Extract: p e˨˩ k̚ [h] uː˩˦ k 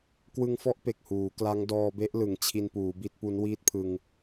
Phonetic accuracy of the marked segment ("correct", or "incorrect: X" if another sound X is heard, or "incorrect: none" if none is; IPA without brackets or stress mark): correct